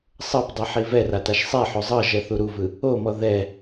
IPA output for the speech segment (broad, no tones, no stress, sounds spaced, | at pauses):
sˤ ɤ p dˤ ɯ ħ i v ɛ r a t a ʃ sˤ ɛ ħ o zˤ ɤ ʒ ɛ θ u ɾ u v ɯ | o m ɔ ð ɛ